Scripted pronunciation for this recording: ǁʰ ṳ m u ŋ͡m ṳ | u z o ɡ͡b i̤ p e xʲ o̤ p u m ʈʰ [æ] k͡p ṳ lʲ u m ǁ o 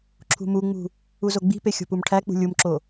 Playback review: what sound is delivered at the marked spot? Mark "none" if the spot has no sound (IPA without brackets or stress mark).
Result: æ